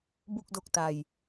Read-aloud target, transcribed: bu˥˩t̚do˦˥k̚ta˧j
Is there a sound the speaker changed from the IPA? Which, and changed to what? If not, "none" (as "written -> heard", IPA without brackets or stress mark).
t̚ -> k̚